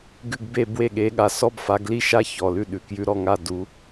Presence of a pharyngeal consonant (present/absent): absent